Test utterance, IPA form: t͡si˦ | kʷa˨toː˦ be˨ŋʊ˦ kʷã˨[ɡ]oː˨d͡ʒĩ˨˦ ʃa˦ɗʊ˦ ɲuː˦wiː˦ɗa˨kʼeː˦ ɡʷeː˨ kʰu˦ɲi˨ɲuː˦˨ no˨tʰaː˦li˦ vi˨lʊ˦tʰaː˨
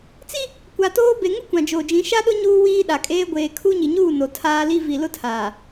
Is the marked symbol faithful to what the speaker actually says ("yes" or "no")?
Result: no